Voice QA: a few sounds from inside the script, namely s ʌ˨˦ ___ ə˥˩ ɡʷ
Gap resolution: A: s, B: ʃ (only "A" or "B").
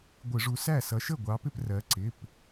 B